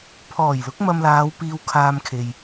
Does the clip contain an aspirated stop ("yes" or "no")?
yes